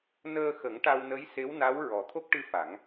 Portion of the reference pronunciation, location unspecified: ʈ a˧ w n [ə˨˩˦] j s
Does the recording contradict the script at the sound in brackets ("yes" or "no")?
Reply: yes